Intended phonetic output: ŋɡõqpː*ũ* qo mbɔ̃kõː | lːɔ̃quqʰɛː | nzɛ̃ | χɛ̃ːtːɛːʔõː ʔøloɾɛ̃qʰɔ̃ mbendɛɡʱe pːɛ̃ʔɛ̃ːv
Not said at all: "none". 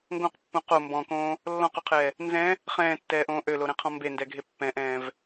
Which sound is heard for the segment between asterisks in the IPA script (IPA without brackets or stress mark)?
ũ